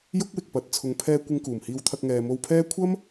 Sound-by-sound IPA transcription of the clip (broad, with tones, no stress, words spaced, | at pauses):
jʊ˥k̚wɪ˨k̚pɐ˨t̚ t͡sʰʊ˨ŋpʰɛː˧ kʷɪ˧ŋkuː˨˩mhiː˧wt̪ʰɐ˧k̚ ŋɛː˨mo˧wpʰɛː˥ kʷʰɐ˥m